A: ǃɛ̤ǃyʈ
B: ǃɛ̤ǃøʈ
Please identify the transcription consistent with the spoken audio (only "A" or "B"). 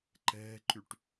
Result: A